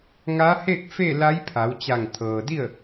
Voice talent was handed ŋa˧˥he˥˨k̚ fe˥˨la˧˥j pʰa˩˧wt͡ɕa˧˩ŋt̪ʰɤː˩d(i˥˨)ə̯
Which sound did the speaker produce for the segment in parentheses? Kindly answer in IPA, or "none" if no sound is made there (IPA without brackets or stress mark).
i˥˨